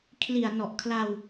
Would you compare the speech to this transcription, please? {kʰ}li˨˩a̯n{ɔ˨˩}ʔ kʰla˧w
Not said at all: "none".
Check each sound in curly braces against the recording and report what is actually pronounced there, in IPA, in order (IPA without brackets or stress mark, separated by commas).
kʰ, ɔ˨˩